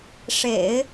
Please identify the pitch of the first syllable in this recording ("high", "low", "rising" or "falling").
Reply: low